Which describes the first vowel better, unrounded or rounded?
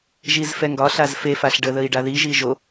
unrounded